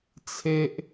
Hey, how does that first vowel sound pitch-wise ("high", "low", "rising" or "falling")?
high